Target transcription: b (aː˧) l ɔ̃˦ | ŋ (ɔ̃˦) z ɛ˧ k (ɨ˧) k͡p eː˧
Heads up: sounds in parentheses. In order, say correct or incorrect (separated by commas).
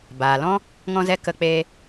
incorrect, incorrect, incorrect